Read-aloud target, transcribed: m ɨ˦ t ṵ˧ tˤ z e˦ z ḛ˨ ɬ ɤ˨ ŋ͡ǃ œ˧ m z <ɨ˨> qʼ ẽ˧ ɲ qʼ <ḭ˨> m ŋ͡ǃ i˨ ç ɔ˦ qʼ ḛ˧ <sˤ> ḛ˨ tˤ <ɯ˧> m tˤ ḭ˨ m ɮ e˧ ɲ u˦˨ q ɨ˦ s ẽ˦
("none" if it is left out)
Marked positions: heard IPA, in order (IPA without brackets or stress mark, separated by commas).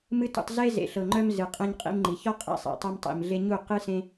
ɨ˨, ḭ˧, sˤ, ɤ˧